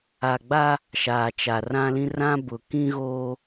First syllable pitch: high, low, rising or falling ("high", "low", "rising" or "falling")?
low